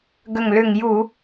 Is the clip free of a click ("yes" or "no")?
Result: yes